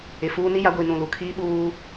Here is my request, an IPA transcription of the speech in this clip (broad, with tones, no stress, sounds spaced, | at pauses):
ɪ˨ f uː˦ n i˦ j a˨˦ ɡʷ i˨ n ũ˨ l u˨ kʰ iː˦ ɓ uː˦